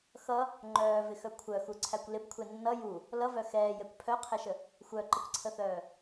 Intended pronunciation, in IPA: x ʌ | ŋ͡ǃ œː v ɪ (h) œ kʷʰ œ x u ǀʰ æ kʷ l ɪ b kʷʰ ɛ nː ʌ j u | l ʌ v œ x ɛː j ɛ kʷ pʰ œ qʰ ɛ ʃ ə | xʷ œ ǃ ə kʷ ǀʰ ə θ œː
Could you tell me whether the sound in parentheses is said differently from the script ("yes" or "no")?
yes